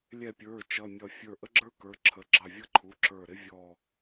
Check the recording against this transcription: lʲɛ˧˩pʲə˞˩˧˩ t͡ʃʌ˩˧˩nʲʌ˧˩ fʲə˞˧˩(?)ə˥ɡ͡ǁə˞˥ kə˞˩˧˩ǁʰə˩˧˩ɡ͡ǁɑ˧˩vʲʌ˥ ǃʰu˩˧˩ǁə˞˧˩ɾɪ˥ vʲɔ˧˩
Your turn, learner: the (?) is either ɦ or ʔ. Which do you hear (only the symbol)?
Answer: ʔ